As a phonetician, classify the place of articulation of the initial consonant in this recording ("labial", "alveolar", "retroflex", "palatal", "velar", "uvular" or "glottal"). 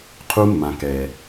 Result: uvular